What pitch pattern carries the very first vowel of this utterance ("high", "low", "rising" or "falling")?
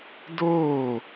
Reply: falling